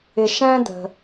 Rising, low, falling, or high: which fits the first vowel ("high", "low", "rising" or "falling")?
low